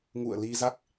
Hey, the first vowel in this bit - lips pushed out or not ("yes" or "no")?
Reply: yes